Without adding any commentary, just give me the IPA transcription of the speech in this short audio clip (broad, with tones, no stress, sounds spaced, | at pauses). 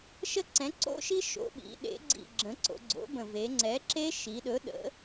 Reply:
ʃ ə˦˥ ǀ ɛ̃˩˥ ǀ o̰˦˥ ʃ i˦˥ ʃ o̰˩˧ ɓ ḭ˩˧ ɗ ḛ˩˧ ɡ͡ǀ ḭ˨˩ ɡ͡ǁ ə̃˩˥ ǀ o̰˩˧ ɡ͡ǀ o̰˩˥ b ə̃˨˩ v e˩˧ ŋ͡ǀ ɛ˩˥ ǁ e˦˥ ʃ i˩˧ ɗ ɵ˩˥ ɗ ə̰˩˧